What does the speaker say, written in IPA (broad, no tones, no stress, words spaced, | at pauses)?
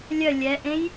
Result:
lʲœ lʲɛʔẽj